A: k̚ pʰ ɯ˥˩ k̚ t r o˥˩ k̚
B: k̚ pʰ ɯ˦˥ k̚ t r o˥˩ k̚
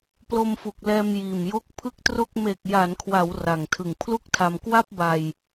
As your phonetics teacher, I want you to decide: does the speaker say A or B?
A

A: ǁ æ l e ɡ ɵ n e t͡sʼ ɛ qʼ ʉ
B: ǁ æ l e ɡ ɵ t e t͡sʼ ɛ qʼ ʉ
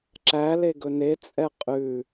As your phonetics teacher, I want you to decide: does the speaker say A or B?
A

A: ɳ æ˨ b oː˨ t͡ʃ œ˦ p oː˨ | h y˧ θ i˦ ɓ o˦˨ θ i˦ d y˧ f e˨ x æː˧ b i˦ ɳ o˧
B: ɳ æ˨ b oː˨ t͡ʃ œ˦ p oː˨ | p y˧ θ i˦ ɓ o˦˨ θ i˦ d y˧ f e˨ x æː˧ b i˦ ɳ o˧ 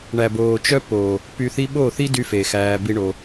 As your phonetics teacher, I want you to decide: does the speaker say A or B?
B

